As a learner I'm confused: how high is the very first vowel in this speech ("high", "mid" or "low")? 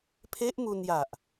mid